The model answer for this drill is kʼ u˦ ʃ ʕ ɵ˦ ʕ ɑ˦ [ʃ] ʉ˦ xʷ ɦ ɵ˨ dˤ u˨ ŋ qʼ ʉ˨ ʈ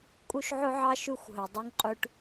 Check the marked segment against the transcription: correct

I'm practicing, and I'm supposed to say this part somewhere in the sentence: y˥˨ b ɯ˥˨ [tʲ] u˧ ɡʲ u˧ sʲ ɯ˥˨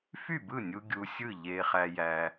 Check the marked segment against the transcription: incorrect: nʲ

